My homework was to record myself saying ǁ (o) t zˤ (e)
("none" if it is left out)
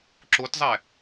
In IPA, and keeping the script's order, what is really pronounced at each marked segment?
o, ɛ

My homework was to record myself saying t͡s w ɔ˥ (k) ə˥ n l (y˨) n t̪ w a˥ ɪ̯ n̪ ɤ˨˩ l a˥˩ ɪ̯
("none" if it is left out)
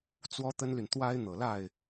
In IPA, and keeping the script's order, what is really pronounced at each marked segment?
t̪, y˨

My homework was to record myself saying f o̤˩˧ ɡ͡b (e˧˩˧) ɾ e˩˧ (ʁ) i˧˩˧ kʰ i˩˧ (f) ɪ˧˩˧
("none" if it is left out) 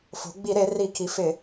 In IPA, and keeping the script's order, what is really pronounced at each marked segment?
i˧˩˧, r, f

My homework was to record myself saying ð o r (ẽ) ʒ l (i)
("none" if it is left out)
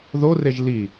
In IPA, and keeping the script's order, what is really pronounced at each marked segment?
e, i

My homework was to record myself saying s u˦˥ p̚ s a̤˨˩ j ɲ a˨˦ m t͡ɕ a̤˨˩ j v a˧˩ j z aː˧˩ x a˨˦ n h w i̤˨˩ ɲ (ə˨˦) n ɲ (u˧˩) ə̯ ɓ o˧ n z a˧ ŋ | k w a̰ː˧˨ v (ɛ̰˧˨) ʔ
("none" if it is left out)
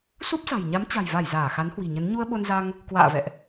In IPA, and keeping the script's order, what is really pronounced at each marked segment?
ə˨˦, u˧, ɛ̰˧˨

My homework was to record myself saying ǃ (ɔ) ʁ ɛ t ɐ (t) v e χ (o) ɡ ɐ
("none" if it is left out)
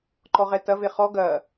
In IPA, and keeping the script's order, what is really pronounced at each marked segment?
ɔ, none, ɔ

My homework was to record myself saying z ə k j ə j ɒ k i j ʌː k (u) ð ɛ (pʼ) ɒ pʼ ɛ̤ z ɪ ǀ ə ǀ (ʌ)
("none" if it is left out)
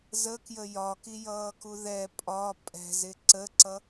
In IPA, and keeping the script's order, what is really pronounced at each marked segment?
u, pʼ, ʌ

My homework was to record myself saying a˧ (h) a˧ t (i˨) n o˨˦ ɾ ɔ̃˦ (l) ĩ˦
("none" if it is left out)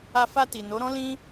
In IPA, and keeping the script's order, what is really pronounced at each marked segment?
f, i˨, l

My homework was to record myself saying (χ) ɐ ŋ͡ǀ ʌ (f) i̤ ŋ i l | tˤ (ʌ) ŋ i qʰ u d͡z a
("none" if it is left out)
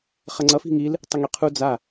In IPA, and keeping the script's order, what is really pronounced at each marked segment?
χ, f, ə

